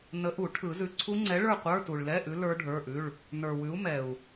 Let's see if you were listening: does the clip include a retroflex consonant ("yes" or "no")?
yes